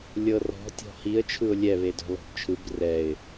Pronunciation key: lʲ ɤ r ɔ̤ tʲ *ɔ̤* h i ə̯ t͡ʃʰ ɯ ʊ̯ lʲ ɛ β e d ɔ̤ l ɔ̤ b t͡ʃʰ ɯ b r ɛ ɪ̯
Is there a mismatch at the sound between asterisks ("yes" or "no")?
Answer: no